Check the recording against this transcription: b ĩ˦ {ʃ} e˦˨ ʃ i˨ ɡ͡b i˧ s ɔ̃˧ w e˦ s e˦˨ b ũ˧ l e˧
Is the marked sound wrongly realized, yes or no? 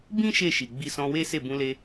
no